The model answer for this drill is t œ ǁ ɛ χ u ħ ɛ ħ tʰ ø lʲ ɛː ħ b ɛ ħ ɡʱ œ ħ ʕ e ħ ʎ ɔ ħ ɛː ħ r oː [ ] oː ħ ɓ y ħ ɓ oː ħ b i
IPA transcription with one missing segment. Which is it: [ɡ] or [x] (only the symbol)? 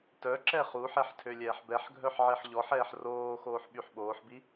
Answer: x